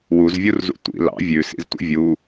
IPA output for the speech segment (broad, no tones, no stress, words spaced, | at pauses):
wuzvʲurzṵ tʷḭ lɑ̰ vʲʉsḭztʷḭ vʲu